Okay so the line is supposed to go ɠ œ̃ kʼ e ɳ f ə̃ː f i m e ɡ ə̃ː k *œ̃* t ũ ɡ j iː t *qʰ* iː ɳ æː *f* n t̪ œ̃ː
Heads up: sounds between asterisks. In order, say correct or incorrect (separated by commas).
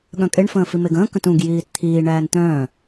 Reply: incorrect, incorrect, incorrect